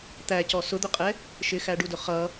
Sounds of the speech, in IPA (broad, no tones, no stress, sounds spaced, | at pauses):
t̪ æ c ɔ s ʊ d̪ ʊ qʼ ɛ | ʃ ɪ x æ ɖ u d ʊ χ ʌ